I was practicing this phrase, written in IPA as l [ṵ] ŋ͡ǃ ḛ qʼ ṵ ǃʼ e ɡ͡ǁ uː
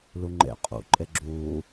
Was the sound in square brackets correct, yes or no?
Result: no